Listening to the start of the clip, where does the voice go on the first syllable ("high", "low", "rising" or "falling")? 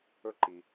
high